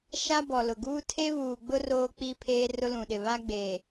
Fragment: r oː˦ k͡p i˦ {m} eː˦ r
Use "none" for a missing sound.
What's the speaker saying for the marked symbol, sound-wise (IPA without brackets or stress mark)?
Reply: pʰ